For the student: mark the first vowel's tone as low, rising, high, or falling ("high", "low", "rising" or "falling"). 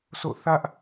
falling